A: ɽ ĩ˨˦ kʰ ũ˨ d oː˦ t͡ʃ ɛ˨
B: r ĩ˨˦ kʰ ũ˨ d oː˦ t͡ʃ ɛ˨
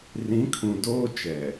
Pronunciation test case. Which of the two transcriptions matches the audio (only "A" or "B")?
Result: B